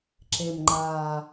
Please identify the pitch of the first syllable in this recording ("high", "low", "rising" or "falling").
low